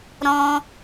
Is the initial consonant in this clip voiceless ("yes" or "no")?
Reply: no